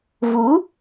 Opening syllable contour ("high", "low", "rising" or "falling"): rising